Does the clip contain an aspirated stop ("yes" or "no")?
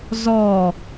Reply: no